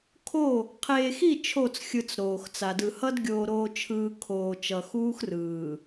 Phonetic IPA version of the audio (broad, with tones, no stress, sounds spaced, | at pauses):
kʰ o˦˨ | qʰ eː˨ x i˦˨ t͡ʃʰ o˦˨ t͡s xʲ ɯ˨ t͡s ɾ oː˨ x t͡s a˨ d ɯ˨ h ʌ˦ d ɡʲ oː˨ ɾ oː˨ t͡ʃʰ ɯː˨ kʰ oː˨ t͡ʃ ʌ˨ x uː˦ x r ɯː˨